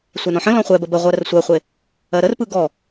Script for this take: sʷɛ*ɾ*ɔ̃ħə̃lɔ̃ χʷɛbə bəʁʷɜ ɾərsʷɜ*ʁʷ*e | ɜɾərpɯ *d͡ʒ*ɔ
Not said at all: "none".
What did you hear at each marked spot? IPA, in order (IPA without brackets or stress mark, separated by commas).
n, χʷ, ɡ